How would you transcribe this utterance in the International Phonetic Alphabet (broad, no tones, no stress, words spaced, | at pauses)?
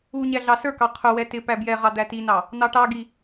u ɲæɮɑsə˞kɑ qʰʊwɛ tɪ pæbjɛʁɑ d̪ætinɑ | n̪ɑʈɑɡi